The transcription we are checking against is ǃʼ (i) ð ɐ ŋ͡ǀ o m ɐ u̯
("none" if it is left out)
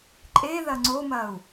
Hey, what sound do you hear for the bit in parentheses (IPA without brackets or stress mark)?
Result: e